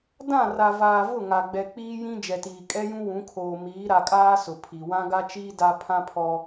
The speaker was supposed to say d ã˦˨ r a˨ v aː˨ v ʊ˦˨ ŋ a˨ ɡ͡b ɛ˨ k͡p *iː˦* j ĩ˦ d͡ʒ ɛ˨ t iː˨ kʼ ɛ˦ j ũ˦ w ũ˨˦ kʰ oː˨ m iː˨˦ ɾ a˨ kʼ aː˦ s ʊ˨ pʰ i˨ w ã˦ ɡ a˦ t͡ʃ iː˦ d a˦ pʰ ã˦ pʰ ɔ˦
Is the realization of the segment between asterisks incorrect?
no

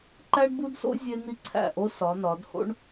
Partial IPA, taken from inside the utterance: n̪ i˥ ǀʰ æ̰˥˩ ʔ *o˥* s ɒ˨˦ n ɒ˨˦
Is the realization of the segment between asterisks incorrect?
no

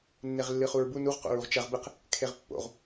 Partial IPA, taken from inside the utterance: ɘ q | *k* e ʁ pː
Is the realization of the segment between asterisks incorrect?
yes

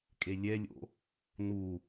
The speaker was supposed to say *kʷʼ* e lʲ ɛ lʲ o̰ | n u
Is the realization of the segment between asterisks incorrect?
yes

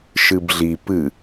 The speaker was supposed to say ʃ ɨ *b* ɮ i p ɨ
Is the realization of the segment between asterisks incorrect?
no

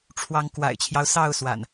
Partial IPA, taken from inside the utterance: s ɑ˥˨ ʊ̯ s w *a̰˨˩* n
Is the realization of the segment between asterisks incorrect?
no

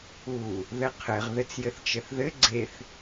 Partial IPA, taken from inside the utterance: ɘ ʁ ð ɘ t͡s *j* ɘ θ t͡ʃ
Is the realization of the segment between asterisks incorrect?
no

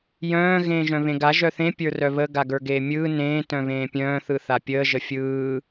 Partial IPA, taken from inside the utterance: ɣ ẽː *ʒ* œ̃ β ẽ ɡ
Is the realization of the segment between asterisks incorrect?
no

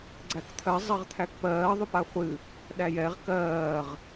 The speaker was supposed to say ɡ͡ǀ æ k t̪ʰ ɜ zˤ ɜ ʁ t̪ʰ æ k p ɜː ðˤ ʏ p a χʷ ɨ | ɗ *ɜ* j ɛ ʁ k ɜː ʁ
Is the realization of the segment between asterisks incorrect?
yes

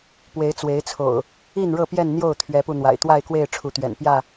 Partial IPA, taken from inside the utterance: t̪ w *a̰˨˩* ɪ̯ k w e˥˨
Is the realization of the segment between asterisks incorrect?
yes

